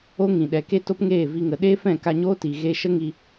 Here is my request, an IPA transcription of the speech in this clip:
o˦ŋĩ˨ɗɛ˨ke˦ to˦pŋeː˦˨vi˧ŋə˨ ɗeː˦ fɛ̃˦˨ka˧ ɲo˦ti˨ɣe˧ ʃə˦ŋi˧

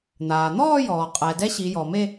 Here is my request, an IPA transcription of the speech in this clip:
n̪aː˩n̪ɔː˥˧jɔː˩ qʼɛː˩ dɛ˧˥ɕiː˩˧jɔː˩me˥˧

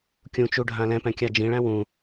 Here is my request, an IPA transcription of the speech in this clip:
kʲũ t͡ʃuɖʱã lɛ̃pɛ̃ kʲad͡ʒĩɭæ̃ wũ

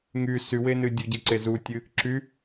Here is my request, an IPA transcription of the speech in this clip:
ŋy sywenɨ dʲuɟɨǀe zutʲɨ | ǁy

